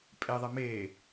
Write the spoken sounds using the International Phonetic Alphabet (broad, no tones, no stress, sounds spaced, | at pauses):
pʼ e ðˤ ɛ m eː